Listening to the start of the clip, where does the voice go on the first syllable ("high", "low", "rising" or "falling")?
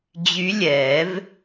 rising